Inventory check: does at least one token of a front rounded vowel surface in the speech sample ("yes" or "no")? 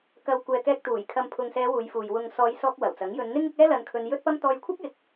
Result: no